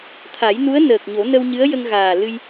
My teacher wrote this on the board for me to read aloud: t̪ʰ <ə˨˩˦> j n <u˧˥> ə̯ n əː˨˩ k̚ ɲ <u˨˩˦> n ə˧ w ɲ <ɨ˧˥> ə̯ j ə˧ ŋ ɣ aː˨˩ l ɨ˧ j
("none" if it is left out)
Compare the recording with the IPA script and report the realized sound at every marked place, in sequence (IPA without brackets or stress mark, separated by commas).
a˨˩˦, u˧˥, o˨˩˦, ɨ˧˥